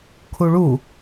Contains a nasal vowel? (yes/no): no